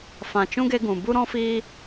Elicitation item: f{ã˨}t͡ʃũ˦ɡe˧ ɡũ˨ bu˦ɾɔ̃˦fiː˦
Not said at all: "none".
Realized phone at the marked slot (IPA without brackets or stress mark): ã˨